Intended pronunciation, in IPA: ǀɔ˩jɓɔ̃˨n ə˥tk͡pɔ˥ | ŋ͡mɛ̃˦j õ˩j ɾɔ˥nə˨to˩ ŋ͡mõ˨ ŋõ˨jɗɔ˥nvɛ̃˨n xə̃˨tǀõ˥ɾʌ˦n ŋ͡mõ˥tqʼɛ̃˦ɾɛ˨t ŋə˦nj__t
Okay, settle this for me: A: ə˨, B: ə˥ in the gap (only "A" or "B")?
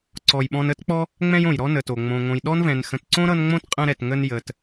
A